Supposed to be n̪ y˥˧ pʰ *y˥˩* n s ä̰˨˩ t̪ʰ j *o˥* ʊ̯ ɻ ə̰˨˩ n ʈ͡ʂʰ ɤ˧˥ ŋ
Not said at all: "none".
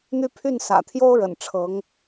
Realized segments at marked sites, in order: y˥˩, o˥

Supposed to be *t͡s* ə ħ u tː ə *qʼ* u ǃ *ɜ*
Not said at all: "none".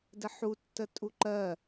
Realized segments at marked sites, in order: d, tʼ, ɜ

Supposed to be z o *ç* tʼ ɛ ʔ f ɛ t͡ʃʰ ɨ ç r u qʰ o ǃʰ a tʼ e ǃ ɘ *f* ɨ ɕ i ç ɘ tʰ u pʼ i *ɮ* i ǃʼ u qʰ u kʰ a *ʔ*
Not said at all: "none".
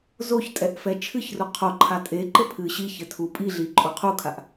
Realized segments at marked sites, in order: ç, pʰ, ɮ, ʔ

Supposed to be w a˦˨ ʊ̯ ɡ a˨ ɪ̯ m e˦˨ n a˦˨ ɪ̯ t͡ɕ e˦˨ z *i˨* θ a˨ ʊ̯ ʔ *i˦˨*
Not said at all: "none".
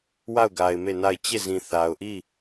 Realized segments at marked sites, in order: ĩ˨, i˦˨

